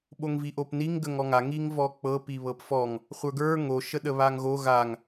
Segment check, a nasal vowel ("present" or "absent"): absent